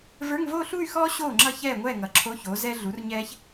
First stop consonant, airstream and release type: click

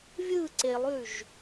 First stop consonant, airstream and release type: click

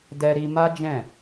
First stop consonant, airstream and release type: plain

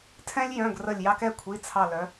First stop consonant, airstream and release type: aspirated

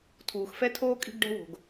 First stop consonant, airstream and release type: aspirated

